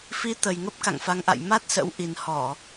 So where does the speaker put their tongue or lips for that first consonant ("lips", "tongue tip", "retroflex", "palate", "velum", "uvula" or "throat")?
lips